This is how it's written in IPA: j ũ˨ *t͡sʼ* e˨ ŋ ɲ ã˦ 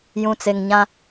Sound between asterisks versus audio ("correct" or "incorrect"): incorrect